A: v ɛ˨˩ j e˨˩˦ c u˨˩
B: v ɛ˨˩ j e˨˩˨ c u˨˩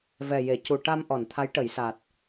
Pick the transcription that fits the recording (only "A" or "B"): B